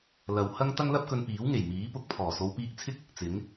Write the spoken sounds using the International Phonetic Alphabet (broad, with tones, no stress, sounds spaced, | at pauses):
l ɐ˨ w h ɐ˥ ŋ t̪ ɐ˥ ŋ l ɐ˥ p̚ k ɵ˧ n p iː˨˥ w ŋ e˨˩ j m iː˨˥ p ʊ˧ k̚ pʰ ɔː˨˩ s o˨˧ w p iː˧ k̚ t͡sʰ ɪ˥ k̚ | t͡s ɪ˨˥ ŋ